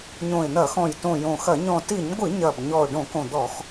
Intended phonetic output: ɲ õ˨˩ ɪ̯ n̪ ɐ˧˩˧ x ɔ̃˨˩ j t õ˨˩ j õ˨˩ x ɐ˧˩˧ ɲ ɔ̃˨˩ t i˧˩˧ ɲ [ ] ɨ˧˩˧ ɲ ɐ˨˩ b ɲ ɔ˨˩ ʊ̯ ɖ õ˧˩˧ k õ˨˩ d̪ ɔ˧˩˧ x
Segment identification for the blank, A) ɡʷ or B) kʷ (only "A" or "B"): A